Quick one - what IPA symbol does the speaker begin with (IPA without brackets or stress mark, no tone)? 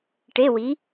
ʈ